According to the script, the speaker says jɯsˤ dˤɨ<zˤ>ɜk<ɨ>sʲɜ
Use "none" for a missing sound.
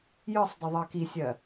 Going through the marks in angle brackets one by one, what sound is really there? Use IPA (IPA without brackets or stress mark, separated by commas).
ðˤ, i